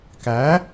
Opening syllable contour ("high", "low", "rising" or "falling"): rising